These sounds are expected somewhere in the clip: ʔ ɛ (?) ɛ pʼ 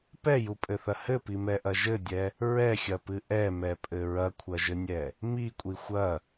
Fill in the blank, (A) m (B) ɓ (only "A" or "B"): A